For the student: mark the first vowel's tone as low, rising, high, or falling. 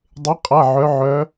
rising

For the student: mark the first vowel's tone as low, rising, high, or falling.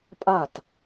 falling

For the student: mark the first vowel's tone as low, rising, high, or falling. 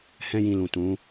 high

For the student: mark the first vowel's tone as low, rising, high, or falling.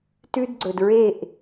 high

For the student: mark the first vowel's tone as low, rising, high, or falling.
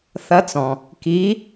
rising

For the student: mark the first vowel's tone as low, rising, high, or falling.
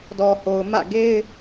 low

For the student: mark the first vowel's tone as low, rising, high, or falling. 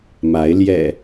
rising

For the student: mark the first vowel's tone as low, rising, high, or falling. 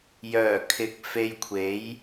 low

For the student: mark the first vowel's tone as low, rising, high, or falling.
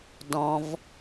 low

